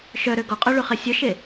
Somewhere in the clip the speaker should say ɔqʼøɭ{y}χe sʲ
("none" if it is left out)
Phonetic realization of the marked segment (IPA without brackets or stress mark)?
y